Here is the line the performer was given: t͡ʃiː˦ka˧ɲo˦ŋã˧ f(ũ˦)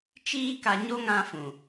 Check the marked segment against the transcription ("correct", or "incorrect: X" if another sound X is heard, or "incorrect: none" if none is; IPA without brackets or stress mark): incorrect: ũ˨